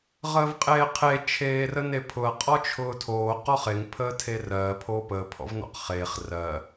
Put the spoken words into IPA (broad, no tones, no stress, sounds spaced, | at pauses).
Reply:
ʁ əː v qʼ eː qʰ e t͡ʃʰ eː r ə n e pʰ ʊ ɐ̯ qʼ ɔ t͡ʃʰ ʊː tʰ oː q ɔ χ e ŋ pʰ əː tʰ e r ɜː pʰ oː p əː pʰ ɔ̰ v n ɔ̰ q χ eː χ r ɜ